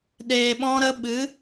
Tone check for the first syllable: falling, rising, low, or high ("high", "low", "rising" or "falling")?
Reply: low